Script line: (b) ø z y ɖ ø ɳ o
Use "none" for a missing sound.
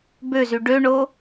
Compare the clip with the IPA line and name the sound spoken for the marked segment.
b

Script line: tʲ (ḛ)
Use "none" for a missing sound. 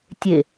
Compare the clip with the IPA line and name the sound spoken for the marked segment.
e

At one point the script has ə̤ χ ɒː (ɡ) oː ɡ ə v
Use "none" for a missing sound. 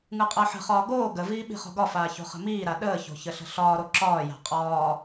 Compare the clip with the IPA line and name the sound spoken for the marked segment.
ɡ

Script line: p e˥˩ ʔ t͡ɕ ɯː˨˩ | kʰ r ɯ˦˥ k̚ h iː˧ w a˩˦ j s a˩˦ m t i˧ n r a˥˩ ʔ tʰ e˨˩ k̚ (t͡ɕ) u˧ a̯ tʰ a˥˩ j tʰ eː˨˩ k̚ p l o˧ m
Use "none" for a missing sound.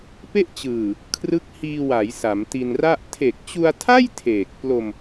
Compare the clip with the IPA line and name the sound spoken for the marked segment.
t͡ɕ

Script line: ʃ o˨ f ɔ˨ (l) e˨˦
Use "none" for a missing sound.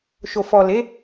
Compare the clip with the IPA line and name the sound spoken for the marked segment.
l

